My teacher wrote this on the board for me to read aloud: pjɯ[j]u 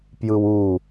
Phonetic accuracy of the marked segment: incorrect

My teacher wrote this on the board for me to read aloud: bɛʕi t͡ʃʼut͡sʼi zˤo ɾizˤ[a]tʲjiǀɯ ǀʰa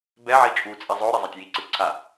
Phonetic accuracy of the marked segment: correct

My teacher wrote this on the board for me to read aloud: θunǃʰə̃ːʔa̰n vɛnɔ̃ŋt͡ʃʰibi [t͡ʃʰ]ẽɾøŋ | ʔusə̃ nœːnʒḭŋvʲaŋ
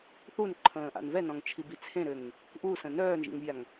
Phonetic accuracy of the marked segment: incorrect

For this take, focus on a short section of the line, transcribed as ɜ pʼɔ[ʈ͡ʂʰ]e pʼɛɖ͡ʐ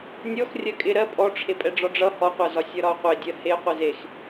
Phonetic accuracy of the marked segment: correct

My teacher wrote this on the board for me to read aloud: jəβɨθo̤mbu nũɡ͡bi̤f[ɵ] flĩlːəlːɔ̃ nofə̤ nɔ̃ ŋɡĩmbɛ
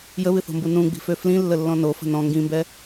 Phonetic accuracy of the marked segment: incorrect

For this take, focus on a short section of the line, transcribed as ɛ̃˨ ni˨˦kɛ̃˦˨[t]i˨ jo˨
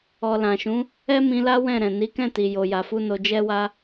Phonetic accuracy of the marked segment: correct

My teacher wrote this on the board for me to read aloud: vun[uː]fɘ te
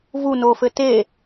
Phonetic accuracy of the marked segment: incorrect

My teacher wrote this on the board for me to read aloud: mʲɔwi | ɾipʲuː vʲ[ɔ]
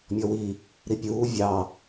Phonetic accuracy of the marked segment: incorrect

